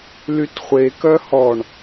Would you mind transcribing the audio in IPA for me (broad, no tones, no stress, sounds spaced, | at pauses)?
l y t χʷ e k œ h ɔ ɳ